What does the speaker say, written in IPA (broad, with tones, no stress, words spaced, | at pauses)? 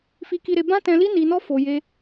fi˧ki˧ɾe˧ bã˦tɛ̃˧li˦ ni˧nɔ˦ fo˧je˦